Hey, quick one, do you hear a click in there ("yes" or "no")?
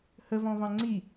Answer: yes